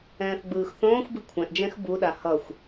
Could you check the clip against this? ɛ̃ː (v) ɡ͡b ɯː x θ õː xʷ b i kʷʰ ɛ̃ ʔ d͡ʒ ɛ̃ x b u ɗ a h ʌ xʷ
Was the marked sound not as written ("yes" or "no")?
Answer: yes